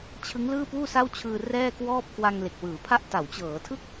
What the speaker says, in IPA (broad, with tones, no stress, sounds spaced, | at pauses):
t͡ɕʰ ɯ˦˥ ŋ l ɯː˥˩ p uː˥˩ s a˥˩ w t͡ɕʰ ɯː˧ r ɛː˥˩ k w ɔː˥˩ p̚ k w a˧ ŋ l e˨˩ k̚ w ɯː˩˦ pʰ a˥˩ ʔ t a˩˦ w t͡ɕ ɤː˩˦ tʰ ɯ˥˩ k̚